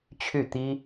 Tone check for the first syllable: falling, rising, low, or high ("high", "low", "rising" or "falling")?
falling